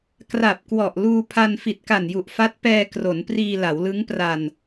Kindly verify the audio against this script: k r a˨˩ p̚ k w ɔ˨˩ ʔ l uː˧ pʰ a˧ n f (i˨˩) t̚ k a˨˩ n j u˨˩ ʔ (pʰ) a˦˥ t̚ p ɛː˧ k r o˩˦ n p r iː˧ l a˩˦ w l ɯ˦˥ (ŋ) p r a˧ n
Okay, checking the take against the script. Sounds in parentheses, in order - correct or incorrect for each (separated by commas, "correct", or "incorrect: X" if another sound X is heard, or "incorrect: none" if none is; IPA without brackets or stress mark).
correct, incorrect: f, correct